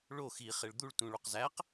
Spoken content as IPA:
ɭ o x i χ e ɭ d̪ u ɭ t ũ ɭ o q z æ q

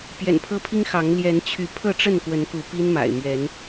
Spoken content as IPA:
p j ɛ̰˨˩ n pʰ ɤ˦ pʰ i˦ ŋ x ɑ˨˦ ŋ l j ɛ˨˦ n t͡ɕʰ y˨˦ pʰ ɤ˥˨ ʈ͡ʂ ə˥˨ n k w ə˨˦ n k u˨˦ p i˦ n m a̰˨˩ ɪ̯ m ɥ ɛ˨˦ n

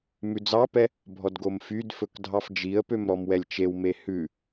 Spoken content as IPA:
m ʉ d͡z ɑ p ɛ | bʱ ɔ d ɡ o m f y d f ɵ k dʱ ɑ f d͡ʒ i ə̯ p ø m ɾ ɔ m w ɛ lʲ t͡ʃ e w m e h ʉ

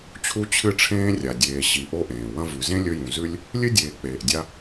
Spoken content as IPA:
t͡ɕʰ u˦ t͡ɕʰ ɨ˦ ʈ͡ʂʰ ẽː˥ rʲ a˨ dʲ eː˨ ɕ i˨ ʔ o˦ ʔ ẽː˩ w ɐ̃˦ v ʉ˨ z ẽ˥ lʲ ɵ˦ j ũ˨ z ʉ˥ lʲ | lʲ ɨ˥ dʲ eː˨ k͡p eː˩ ʔ dʲ a˦

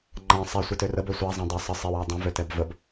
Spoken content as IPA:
ŋ͡ǃ ã sˤ ɛ sʷ i t ø r ə b ø sʷ a zˤ ẽ dˤ ɛ sˤ ə sˤ i w a dˤ ə̃ v ø t ɛ b v ə b

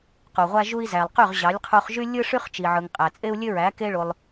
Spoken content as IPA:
q u˨ ʁʷ æ˦ ʒ u˦ i̯ z æ˨ lˠ q y˦˨ ʁ ʑ ɑ˨˦ lʲ qʰ u˧ χ ʒ y˦ lʲ ɯ˦ ʂ y˦ χ t͡ʃ i˨ ʕ ɯ˨ ŋ qʼ æ˨ t͡sʼ e˦ u̯ lʲ ø˦ ɹ æ˨˦ k e˦ ɭ o˧ lˠ

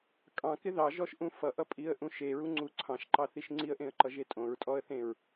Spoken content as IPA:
kʼ ɑ̃ k ɪ ð ɑ ʒ ɔ ʃ ʔ ũ f ʌ ʔ ʌ pʼ i ə̯ ʔ ũ ʃ e ɹ u ŋ͡ǀ u ǀʰ ɑ̃ ʃ ǃ ɑ θ i ʃ ŋ͡ǀ i ə̯ ʔ ẽ ə̯ ǃ ʌ ʒ e tʼ õ ɹ tʼ ɔ ə̯ θ ẽ ɹ

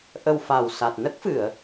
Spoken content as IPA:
ʔ ə˧ w f a˨˩ w s a˨˩ t̚ n ə˦˥ k̚ f ɨ˨˩˨ ə̯

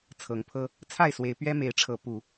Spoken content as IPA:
t͡sʰ ɤ˨˦ ŋ pʰ ɤ˦ | t͡sʰ a˥˨ ɪ̯ s w e˨˦ ɪ̯ p ɥ ɛ˦ m e˨˦ ɪ̯ ʈ͡ʂʰ ɤ˨˦ p u˨˦

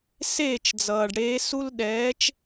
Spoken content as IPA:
s eː˥˩ t͡ʃ d͡z ʌː˩ ɖ ɽ eː˨˦ s u˦ l ɗ ɛː˨˦ t͡ʃ

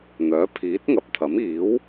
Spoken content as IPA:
n̪ œː˨˥ pʰ iː˨˥ t̚ ŋ ɐ˨ p̚ t̪ʰ ɐ˨˥ m iː˨˥ w

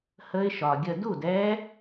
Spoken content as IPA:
h ə˦˥ ɪ̯ ʃ ɒ˩ ɡʲ ə˧˩ d u˥˩ d ɛ˦˥

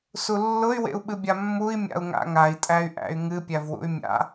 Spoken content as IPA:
s u lː ʊ y̯ w ḛ u̯ ɓ ɨ bʲ a mː u i̯ mʲ a̰ u̯ ŋ a̰ ŋ a i̯ tʼ æ y̯ ʔ æ̰ y̯ ŋ ɨ pʲ æ v w ṵ y̯ mʲ a̰

